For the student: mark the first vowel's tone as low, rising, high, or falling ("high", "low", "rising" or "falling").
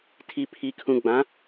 low